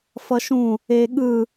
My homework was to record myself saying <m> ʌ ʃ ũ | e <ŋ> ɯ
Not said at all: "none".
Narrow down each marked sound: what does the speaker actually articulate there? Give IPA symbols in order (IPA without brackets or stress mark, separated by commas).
f, ɠ